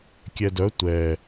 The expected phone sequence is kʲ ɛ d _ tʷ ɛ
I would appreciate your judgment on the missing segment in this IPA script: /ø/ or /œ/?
œ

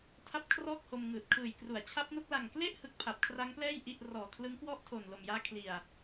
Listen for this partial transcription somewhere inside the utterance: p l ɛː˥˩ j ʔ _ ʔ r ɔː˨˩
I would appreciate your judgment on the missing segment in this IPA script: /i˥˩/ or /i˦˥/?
i˥˩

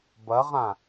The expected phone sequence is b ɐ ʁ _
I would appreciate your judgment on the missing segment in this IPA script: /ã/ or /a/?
ã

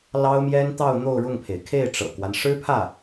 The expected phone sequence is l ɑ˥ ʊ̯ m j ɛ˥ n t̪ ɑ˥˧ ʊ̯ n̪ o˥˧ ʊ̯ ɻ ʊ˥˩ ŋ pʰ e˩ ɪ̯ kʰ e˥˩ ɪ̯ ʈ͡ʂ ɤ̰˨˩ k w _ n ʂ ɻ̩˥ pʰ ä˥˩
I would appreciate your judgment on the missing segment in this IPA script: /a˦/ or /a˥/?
a˦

